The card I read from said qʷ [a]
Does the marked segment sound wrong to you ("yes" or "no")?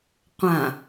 yes